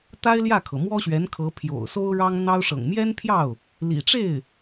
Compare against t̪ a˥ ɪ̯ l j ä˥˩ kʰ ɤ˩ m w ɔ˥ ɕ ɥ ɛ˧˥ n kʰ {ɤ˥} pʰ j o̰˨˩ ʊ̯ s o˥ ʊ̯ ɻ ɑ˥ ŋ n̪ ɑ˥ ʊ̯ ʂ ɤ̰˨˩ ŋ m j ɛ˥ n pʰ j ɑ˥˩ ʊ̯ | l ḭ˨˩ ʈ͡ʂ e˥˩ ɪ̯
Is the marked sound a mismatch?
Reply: yes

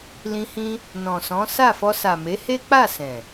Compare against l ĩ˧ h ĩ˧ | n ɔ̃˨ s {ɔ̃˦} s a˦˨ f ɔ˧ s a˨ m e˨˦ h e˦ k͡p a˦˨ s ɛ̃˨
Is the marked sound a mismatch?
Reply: yes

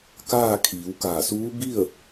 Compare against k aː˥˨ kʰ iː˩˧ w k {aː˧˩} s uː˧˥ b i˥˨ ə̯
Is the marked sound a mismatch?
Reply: no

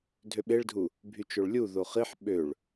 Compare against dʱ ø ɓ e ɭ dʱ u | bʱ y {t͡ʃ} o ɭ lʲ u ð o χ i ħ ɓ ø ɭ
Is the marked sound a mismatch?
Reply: no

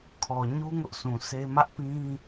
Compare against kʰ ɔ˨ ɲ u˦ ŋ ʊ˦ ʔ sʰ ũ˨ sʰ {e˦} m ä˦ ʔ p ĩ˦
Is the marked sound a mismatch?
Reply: no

